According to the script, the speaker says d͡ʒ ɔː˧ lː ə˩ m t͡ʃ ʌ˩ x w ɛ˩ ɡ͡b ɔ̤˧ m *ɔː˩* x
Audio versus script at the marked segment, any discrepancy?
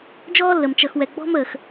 yes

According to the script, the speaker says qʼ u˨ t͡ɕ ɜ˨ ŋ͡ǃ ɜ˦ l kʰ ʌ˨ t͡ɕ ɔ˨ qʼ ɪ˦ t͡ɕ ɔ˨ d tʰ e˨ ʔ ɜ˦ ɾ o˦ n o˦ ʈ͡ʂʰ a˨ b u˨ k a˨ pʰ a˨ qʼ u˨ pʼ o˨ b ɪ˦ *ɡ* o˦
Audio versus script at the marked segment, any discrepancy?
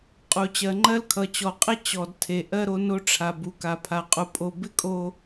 yes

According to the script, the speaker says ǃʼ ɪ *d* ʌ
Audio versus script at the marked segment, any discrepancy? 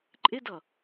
no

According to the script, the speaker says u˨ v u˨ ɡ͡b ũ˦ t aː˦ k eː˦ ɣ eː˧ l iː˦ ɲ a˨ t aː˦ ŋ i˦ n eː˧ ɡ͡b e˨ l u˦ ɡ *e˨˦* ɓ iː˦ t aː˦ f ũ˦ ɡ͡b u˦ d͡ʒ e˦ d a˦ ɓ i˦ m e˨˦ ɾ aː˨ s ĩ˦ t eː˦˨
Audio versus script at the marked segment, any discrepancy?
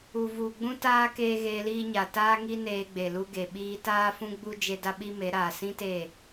yes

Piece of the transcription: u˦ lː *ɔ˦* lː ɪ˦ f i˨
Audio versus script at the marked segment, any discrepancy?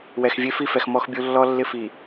no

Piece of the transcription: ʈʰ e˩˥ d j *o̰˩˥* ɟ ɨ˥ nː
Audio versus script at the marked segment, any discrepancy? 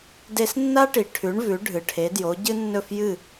yes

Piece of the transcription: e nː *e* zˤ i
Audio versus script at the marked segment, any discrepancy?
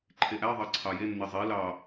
no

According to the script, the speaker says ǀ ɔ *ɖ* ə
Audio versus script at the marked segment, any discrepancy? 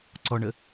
yes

